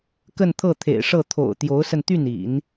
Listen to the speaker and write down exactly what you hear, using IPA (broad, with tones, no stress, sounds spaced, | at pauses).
k ə˥˧ n t̪ʰ ɤ˥˩ t̪ʰ ḛ˨˩ ɪ̯ ʂ ɤ˥˩ t̪ʰ o̰˨˩ ʊ̯ t̪ j o˧˥ ʊ̯ s ə˧ n t̪ y˥˩ n ḭ˨˩˦ n